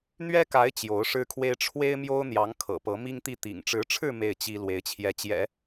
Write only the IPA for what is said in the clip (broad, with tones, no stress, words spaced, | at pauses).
n̪ɥɛ˥ka˧˥ɪ̯ t͡ɕjo˧˥ʊ̯ʂɻ̩˥kʰwe˥ɪ̯ ʈ͡ʂʰwe˥ɪ̯mjo˥ʊ̯n̪jɑ˧˥ŋ kʰɤ̰˨˩pɤ˧˥mi˥ŋt̪i˥˩ t̪ḭ˨˩ŋʈ͡ʂɻ̩˧˥ʈ͡ʂʰɻ̩˥˧ me˥˩ɪ̯t͡ɕi˥ lwe˧˥ɪ̯t͡ɕʰjɛ˧˥ t͡ɕjɛ̰˨˩˦